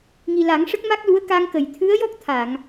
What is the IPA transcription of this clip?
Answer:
ŋ i˨˩ l a˨˩˦ ŋ ʂ ə˦˥ k̚ m a˦˥ k̚ l u˧˥ ə̯ k a˧ ŋ k ə˨˩˨ j t̪ʰ ɨ˧˥ ə̯ j ɔ˦˥ k̚ t̪ʰ a˨˩˨ ŋ

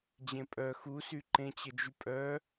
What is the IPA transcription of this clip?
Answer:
d͡ʑ ẽ pʼ œ x u s y ǃ ẽ t͡ɕ ə d͡ʒ y pʼ œ

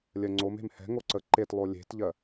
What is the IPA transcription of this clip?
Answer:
lʲ ɜ ŋ͡ǀ o m e̤ m h ɛ̤ ŋ o ǀ ə ǃ e t lˠ o lʲ e̤ t ʎ ɜ

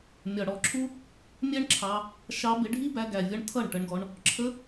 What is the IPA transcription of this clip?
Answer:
mʲ ɒ˨ ɽ ɔ˨ ǁʰ u˦ | mʲ ɛ˦ ɳ ǁʰ ɑ˧ | ʃ ɑ˧ b ɪ˧ ɖʱ i˦ b æ˧ ɡ æ˨ vʲ ʌ˧ ɳ tʰ ʌ˦˨ ɳ ʈ ə˧ ɳ ɡ ɔ˧ ɳ | ǁʰ ə˧

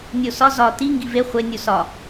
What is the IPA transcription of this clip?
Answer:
nʲ o s ɒ z ɒ t i ŋ ɡ i v e χʷ e nʲ u s ɒ

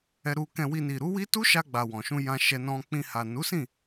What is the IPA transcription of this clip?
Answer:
ɛ˧ ɾ u˧ k ɛ̃˧ w i˧ n i˨ ɾ u˨˦ w i˦ t u˦ ʃ a˧ ɡ͡b a˨ w ɔ̃˨ ʃ ũ˧ j ã˧ ʃ ɛ˧ n ɔ̃˧ k͡p ĩ˧ h a˨ n u˨˦ s ĩ˦˨

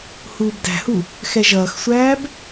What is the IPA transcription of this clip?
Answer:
h uː b d æ̤ h u | x ɛ ʒ ʌː x sʷ æː b

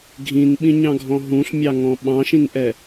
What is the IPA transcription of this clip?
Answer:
ɡʱ ĩ n ɓ ĩ ɲ ɑ̃ ɡʱ ɔ̃ ɦ ũ ɬ mʲ ɑ ŋ ɔ̃ ɓ ɑ̃ ʃ ĩ n ʔ ɛ

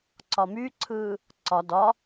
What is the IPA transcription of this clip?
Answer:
ǀ ɒ m y ǀʰ ɯː | ǀ ɒ d ɒ

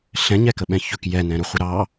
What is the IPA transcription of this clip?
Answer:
ɬ ɛ̃ ɲ ɛ k ə ɓ ɛ̃ ç ɵ k j ɛ n ɛ̃ ɾ ɵ χʷ ə ɾ ɑ

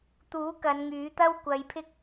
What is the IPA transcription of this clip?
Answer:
t̪ uː˨˥ k ɐ˨˧ n ŋ yː˨˥ t̪ ɐ˥ w kʷ ɐ˨˧ j pʰ ɪ˥ k̚

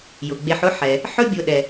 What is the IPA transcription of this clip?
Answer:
j ʊ˩ ɡ͡b e˨ ħ ʊ˦ ħ ɛ˩ | ħ ɵ˦ bʲ ʊ˨ ɗ ɛ˩

